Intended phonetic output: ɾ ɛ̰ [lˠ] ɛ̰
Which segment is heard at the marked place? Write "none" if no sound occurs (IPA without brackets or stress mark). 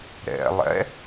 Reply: lˠ